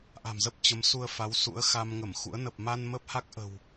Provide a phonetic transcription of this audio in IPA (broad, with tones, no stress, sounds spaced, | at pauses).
ʔ a̤˨˩ m z ə˦˥ p̚ t͡ɕ ə˨˦ m s u˧ ə̯ f a˨˦ w s ṵ˧˥ ə̯ x a˧ m ŋ ə˧˩ m x ṵ˧˥ ə̯ n ə˨˩ p̚ m a˧ n m ə˦˥ p̚ h a˦˥ k̚ ʔ ə̤˨˩ w